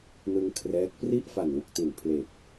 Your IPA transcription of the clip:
nɯ˧ŋkʰrɛː˦˥k̚ pri˥˩ʔfa˨˩nwu˨˩k̚ti˨˩n pʰle˨˩k̚

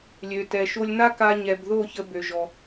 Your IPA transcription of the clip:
lʲø˨ tɛ˨ʃo˧lʲna˦ ka˧ɲɛ˨bðo˦˨ çə˧bø˨ʒɔ˨

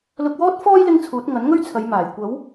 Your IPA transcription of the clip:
lʊ˧k̚wɔː˥t̚fɔː˥j lɪ˥ŋt͡sʰuː˨˥t̚ ŋɐ˨˥nŋɵ˥ɥt͡sʰɐ˨˧jmaː˨˩j kʷɐ˨˥w

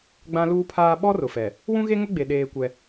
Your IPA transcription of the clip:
ɡ͡bã˦luː˦pʰaː˦ ɓɔ˦ rʊ˨fɛ˨ | wũ˦ɣe˦ŋʊ˦ɡ͡be˨ ɗeː˦kʷɛ˦

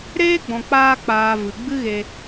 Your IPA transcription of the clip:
ɾeː˦ɡ͡bɔ̃˨k͡paː˧k͡paː˨ vɨ˨ɡ͡bɨ˦ɣe˧

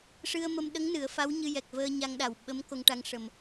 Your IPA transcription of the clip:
ʂɨ˧ə̯mə˧m ɗə˧˥ŋ nɨ˨˩˦ə̯ fa˧˥wɲɨ˧ jɛ˨˩k̚vəː˧ɲa˧ŋɗa˨˩w ɓə˧˥m ko˧ŋʈa˧ŋʂə˨˩m

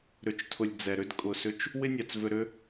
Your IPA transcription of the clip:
ɾʏ˧t͡ʃtʰʊ˧lʲ d͡zɛ˨ɾʏ˦d kʼʊ˧sʏ˦t͡ʃ | wɪ˦nʲa˨t͡svʏ˧ɾʏ˦

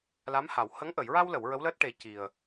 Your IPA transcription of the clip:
la˧˥mha˨˩˨w hə˧˥ŋ ʔə˨˩˨jɹa˧wlə˨˩˨w ɹə˧˥wləː˦˥t̚ ʈe˨˩˦ ci˨˩ə̯

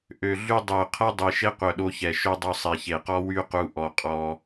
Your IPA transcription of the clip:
ʔø˨ɮy˧ dˤe˨ʊ̯qʰɛ˦dˤi˨ ʃe˦qʷœ˨ɗo˧çɛ˨ ʃø˦dˤy˧ sˤi˨çe˨qɔ˦ wy˦qu˧ ʔɔ˧qʼɔ˧

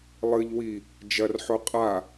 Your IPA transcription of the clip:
lˠɨʎwi | d͡ʒɐrħo qʼa

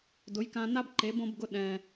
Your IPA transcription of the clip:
dʊ˨˦j kã˧na˦bǃe˨˦b õ˦b ɡʊ˦ ɗɛ̃˧

